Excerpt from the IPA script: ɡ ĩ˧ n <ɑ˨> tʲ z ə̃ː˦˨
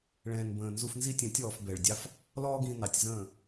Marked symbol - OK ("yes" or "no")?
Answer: yes